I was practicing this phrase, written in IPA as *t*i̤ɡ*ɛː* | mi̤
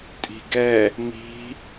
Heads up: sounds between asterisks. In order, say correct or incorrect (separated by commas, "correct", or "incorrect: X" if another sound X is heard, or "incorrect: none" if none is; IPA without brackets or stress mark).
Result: incorrect: tʼ, incorrect: ɛ